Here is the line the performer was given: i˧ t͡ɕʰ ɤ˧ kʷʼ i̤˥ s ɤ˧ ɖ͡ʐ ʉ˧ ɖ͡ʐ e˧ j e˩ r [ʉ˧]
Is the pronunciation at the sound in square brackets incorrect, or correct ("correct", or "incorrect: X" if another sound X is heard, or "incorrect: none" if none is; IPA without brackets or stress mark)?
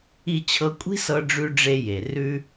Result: correct